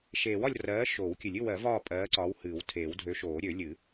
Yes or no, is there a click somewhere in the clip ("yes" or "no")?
yes